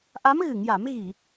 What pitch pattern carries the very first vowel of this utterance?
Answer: rising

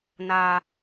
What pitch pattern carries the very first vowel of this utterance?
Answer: high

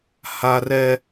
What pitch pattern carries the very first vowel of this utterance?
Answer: high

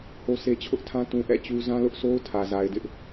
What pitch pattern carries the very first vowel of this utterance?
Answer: high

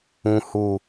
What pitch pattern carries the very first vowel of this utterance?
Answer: low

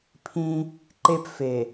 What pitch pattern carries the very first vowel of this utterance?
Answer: high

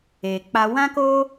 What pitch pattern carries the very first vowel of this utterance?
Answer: low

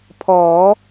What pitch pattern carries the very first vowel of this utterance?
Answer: rising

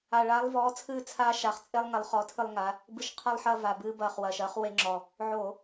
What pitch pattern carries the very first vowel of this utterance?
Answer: low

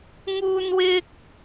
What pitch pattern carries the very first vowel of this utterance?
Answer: high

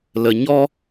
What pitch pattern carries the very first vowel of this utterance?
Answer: low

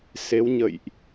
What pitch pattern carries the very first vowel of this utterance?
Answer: rising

